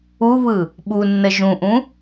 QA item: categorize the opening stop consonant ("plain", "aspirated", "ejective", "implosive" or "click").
implosive